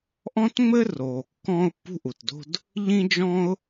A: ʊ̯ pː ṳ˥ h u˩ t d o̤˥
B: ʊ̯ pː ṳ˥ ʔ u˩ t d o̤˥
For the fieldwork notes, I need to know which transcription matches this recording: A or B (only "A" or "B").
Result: B